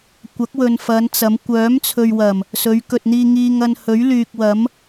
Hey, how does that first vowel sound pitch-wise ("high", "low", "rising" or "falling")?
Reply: rising